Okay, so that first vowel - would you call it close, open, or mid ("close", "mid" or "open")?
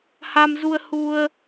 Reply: open